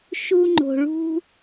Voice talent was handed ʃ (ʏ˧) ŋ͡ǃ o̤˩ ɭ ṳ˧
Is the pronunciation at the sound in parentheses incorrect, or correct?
incorrect